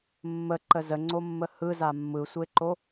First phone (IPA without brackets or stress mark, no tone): mː